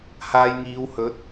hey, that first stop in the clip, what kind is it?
plain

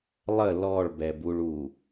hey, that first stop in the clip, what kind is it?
plain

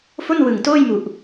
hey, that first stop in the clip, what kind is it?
plain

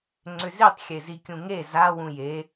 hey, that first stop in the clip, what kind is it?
click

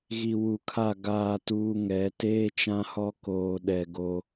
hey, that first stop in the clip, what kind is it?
aspirated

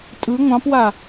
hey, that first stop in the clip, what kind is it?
ejective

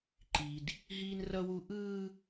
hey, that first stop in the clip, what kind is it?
click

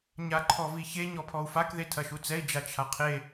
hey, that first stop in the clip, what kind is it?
click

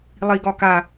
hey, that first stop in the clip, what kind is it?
plain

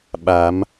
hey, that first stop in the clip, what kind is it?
implosive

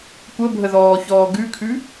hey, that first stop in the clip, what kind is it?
plain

